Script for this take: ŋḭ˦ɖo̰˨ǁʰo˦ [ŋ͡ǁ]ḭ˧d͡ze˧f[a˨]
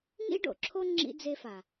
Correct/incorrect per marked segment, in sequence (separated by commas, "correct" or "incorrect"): correct, correct